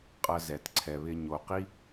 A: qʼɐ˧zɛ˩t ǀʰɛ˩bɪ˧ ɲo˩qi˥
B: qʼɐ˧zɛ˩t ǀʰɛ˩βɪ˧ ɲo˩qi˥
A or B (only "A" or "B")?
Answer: B